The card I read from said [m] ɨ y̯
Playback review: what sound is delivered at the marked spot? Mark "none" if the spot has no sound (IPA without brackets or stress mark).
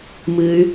m